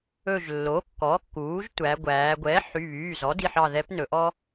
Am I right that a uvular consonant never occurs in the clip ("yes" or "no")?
yes